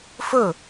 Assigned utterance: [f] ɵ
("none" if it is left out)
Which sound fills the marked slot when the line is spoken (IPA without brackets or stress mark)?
f